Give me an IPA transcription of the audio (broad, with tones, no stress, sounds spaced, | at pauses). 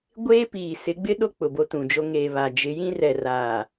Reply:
ɡʷ eː˦ p iː˨ s ɪ˨˦ ɡ͡b ɪ˦ ɗ o˦ k͡p ʊ˨ b o˦ t ũ˨ d͡ʒ o˦ ŋ eː˨ β a˨ d͡ʒ ɪ˨˦ j ĩ˦ r ɛ˨ r aː˨